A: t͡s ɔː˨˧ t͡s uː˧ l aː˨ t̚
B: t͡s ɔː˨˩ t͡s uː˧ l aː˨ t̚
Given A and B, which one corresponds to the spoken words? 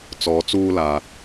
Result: A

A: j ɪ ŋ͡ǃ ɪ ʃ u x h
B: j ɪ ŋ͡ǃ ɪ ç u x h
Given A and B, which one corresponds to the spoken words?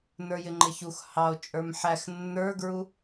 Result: B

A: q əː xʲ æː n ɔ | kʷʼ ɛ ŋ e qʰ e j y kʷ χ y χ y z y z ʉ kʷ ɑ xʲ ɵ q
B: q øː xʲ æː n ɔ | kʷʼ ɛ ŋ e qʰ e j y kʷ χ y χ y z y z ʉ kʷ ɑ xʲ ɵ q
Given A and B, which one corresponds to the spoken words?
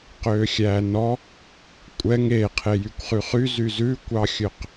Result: B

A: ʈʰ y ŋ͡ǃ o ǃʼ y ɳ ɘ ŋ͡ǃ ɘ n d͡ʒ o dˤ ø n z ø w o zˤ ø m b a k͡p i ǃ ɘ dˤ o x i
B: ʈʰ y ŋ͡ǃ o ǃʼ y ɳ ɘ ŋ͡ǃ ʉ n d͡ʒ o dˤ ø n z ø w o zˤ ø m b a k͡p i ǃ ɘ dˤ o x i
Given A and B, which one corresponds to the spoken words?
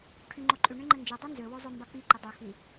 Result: A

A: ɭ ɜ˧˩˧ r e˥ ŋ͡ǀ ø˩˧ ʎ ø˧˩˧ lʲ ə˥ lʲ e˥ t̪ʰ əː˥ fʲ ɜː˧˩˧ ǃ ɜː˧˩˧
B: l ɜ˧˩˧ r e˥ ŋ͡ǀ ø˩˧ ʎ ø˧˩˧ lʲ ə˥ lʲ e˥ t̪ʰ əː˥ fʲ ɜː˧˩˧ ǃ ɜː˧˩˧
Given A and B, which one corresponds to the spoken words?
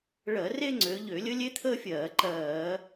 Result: A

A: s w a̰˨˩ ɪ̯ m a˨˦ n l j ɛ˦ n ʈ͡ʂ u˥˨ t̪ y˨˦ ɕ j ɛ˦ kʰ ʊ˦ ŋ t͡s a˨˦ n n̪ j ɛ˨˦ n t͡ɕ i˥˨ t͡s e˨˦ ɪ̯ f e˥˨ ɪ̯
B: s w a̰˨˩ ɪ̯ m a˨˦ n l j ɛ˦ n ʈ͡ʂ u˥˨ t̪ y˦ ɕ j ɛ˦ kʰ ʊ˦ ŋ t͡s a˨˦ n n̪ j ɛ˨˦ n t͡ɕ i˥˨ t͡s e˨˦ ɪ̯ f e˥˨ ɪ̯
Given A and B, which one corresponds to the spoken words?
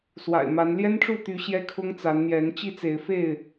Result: A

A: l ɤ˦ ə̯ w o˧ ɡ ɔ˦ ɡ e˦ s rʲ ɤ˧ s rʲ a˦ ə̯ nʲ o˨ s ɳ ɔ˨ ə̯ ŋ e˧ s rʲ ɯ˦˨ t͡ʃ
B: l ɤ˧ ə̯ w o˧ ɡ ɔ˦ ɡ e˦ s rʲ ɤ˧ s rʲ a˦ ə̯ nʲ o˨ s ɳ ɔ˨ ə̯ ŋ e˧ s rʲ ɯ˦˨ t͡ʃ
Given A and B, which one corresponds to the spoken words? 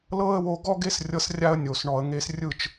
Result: A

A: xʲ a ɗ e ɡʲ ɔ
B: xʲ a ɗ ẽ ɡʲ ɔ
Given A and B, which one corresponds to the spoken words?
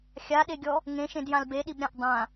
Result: A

